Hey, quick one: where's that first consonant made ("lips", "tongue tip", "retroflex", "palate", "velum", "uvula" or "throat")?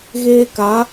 velum